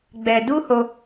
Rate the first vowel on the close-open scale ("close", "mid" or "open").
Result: mid